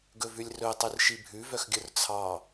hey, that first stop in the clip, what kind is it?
plain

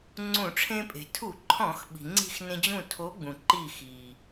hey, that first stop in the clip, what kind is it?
click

